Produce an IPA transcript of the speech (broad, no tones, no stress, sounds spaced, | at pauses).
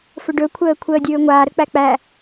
f ɵ ɖ ɵ kʷʰ əː kʷʰ əː dʲ ɵː ŋʷ a ɾ ə k͡p æ k͡p æ